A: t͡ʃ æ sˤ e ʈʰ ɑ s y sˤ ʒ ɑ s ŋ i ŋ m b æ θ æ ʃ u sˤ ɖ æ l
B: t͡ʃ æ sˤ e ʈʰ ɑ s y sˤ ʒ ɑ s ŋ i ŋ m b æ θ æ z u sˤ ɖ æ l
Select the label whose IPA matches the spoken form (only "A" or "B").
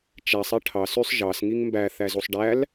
B